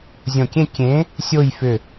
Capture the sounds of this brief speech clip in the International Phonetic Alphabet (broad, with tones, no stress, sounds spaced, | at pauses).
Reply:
zʲ õ˧˩ kʲ ẽ˥˧ kʲ ẽ˨˥ | sʲ o˥˧ j f ʏ˧˩